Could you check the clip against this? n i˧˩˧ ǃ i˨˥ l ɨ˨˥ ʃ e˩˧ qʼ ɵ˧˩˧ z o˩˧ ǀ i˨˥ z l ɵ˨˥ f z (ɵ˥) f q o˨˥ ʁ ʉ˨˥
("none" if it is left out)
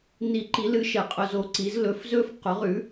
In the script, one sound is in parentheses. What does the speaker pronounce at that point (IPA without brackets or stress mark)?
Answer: ɵ˥